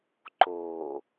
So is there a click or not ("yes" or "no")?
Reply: yes